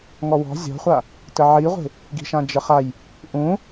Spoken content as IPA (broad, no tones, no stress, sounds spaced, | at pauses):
ŋ ɔ w ɔ̤ zʲ ɔ̤ χʷ a | t ə ʕ i ʁʷ e̤ | ɡ i̤ ʃ ã d͡ʒ ə χ a j | ʔ ũ